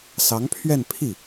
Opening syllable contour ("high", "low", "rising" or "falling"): rising